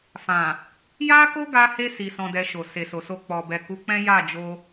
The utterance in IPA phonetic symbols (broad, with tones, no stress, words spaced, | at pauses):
fã˨ | ja˦ko˦ɡa˧he˧ si˧sɔ̃˧dɛ˧ʃo˨ se˨so˨so˧ k͡pɔ˨bɛ˨ ku˨˦k͡pɛ̃˦ja˦˨ d͡ʒo˧